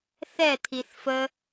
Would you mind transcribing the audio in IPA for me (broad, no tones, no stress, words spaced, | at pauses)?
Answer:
θɛt̪ʰiθ fə